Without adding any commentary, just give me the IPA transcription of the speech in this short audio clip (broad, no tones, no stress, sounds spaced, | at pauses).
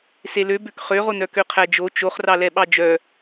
s e l ø b ø k χ ø ʁ o n œ k ø qʰ æ d͡ʒ o t͡ʃ o χ r ɑ l ɛ ɓ ɑ d͡ʒ œ